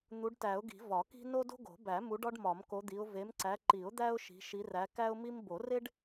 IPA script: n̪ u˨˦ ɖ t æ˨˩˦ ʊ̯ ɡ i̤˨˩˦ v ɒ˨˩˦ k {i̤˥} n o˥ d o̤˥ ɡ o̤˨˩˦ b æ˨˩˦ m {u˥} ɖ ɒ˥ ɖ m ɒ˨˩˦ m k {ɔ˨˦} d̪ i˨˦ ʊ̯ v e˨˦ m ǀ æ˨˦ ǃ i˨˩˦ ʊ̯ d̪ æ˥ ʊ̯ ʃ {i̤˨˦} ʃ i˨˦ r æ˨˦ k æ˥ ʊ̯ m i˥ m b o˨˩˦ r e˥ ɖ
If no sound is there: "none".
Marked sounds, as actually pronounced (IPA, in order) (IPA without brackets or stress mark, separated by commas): i̤˥, u˨˦, o˨˦, i̤˨˦